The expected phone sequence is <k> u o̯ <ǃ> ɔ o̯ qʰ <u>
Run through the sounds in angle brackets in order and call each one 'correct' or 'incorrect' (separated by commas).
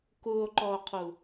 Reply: correct, correct, correct